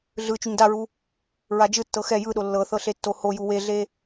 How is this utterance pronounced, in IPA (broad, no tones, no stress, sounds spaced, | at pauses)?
ɮ ɯ t͡ʃ u ɲ d a ɹ u | ɹ a d͡ʒ ɯ tː ɤ x ɛ j ɯ ɗ o lː ɤ θ ɤ ɬ e tː o h o j u w e ɮ e